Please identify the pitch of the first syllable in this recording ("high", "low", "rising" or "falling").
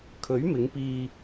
rising